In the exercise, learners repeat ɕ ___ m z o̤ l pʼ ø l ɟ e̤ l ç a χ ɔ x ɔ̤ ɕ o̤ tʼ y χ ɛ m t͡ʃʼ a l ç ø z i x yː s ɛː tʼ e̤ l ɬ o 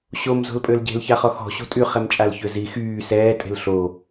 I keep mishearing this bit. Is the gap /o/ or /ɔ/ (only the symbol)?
o